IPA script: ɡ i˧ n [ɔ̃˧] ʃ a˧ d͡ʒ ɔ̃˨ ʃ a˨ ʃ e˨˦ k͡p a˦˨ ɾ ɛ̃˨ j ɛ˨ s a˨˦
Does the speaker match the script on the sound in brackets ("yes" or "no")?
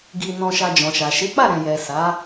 yes